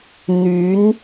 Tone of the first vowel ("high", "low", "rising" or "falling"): rising